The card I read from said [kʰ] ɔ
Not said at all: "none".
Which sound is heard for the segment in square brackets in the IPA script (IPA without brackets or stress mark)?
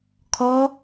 kʰ